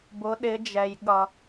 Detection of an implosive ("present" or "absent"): present